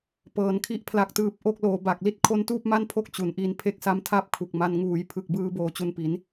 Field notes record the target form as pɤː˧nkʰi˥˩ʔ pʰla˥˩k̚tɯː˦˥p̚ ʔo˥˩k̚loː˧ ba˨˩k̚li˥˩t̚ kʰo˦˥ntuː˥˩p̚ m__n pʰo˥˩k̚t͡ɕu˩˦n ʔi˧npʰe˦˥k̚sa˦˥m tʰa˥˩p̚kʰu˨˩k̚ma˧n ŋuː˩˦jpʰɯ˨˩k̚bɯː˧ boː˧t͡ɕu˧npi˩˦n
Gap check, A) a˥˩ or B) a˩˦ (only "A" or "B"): A